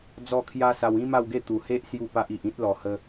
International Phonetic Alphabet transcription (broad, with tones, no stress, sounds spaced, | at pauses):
d͡z ɔ˥˧ kʰ j a˦ s a˧ w ĩ˦ m a˥˧ w ɡ e˥˧ t̪ u˨˩ h e˦ ʔ s j u˥˧ p a˦ ʔ i˨ ʔ ĩ˦ t̚ l ɔ˨˩ h ə˧